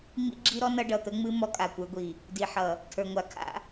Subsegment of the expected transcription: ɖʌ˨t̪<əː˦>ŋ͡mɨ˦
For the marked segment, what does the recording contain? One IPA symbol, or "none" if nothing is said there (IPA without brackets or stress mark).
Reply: ə˦